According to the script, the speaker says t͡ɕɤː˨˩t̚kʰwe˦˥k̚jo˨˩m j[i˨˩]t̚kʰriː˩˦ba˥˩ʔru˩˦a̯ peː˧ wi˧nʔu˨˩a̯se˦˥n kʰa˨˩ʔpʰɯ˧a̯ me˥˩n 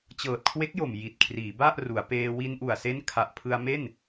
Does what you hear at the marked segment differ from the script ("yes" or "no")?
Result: no